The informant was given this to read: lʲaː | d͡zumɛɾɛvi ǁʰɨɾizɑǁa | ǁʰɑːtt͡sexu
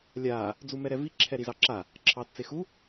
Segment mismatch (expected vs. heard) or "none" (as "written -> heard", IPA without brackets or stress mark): ɨ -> ɛ